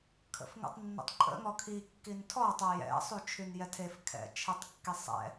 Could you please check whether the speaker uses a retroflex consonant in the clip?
no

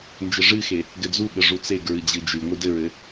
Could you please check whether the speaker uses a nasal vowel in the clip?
no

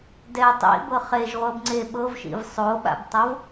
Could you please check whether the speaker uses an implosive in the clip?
yes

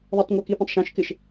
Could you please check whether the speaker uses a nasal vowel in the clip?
yes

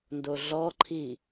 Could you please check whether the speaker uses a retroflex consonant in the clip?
no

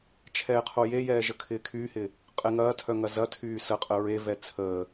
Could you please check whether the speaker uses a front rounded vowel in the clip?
yes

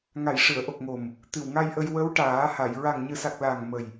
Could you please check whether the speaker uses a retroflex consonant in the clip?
yes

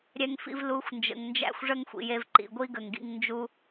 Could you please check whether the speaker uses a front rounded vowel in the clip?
no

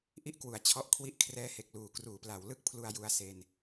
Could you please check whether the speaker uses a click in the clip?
no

